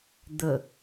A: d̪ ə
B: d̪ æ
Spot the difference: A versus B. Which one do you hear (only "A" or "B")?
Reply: A